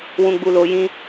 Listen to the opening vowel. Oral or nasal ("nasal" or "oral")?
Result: nasal